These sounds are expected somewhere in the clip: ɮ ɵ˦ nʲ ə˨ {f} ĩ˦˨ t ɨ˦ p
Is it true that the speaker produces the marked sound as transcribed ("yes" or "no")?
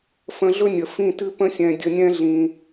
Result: yes